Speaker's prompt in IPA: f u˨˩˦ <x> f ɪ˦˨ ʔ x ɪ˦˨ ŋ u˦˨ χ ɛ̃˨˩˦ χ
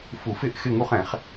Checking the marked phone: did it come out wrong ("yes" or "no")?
yes